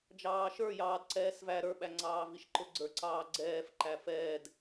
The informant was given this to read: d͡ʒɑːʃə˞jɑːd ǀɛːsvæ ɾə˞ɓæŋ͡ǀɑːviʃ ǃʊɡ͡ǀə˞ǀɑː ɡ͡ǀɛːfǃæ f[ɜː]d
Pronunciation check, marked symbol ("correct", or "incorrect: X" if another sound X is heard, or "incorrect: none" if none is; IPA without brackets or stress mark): incorrect: ɛː